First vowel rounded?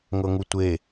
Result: no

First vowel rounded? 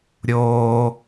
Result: yes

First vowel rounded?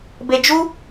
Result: no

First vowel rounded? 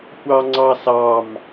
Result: no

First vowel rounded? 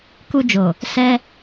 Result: yes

